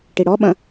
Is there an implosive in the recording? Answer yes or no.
yes